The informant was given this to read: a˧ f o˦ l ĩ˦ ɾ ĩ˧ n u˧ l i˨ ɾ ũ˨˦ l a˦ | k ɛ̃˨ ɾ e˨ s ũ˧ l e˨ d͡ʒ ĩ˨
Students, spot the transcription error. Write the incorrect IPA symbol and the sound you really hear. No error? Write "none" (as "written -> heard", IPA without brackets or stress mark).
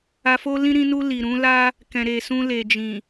none